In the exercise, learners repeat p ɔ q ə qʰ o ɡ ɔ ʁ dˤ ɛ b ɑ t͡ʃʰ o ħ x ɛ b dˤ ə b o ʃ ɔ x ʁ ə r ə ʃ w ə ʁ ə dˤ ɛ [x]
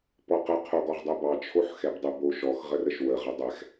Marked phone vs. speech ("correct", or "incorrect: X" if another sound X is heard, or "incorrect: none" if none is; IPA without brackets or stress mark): correct